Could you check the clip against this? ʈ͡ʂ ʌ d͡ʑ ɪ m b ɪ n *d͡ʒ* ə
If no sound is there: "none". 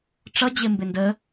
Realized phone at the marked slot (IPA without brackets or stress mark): d